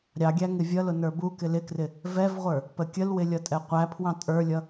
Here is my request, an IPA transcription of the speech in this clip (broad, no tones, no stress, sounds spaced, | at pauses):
ɾʲ ɑ ɡʲ æ ŋ ɪ vʲ ʌ l ʊ n ə˞ b u k ɪ l ɪ k r ɪ | v ɛ v ʁʷ ə˞ | p ə kʲ ə l w ɪ lʲ ʌ tʼ ɛ qʷ æ pʰ w ɑ̃ tʼ ə˞ lʲ ʌ